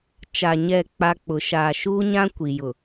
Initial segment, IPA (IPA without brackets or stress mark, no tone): t͡ʃ